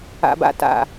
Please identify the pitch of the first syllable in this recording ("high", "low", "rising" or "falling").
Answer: low